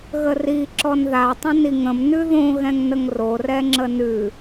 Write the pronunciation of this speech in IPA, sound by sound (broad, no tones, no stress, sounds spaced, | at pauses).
ɣ ə r i ǁ ɔ n ð a tˤ ə̃ n i ŋ ə̃ m n ʉ ð õ ɣ ɛ̃ ŋ n ə ŋ r o r ɛ ŋ͡ǁ ə n ʉ